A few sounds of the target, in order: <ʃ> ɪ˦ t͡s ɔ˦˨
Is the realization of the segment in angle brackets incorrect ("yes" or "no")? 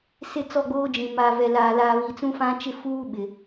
yes